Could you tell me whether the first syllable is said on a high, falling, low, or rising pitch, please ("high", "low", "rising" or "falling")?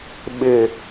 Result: low